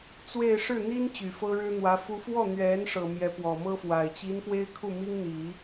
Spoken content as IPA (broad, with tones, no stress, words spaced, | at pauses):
t͡swe˥˧ɪ̯ ʂɻ̩˥˩n̪i˥n t͡ɕy˨˩fɤ˥ɻɻ̩˥n̪wä˧˥ fu˧˥fwɔ˥˩ n̪ɥɛ˧˥n ʂɤ˨˩ mjɛ˧˥pwɔ˨˩ mɤ˥fwa˨˩ɪ̯ t͡ɕi˧˥n pwe˥ɪ̯kʰu˥˩ mi˥ŋ n̪i˨˩˦